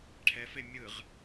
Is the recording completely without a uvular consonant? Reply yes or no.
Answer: no